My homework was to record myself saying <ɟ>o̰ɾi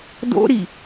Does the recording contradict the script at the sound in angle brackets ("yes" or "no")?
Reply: yes